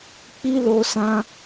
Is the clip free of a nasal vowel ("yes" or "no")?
no